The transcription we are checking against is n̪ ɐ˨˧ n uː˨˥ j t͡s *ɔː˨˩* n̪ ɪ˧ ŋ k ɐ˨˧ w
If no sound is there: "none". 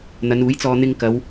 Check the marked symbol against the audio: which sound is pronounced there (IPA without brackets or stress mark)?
ɔː˧